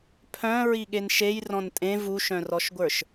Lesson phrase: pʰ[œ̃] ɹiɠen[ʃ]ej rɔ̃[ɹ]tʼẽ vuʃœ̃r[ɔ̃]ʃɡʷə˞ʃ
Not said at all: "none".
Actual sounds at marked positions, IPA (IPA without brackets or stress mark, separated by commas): œ̃, ʃ, n, ɔ